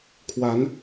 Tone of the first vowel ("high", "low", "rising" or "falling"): rising